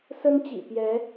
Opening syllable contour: high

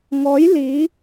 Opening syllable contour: rising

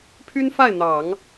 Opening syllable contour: high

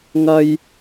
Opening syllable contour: high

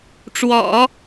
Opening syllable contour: low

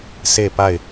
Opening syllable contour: falling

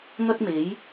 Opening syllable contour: high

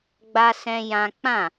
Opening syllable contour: high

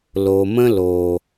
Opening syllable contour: low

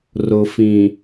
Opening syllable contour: low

